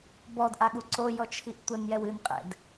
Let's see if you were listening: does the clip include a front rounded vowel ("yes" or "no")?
no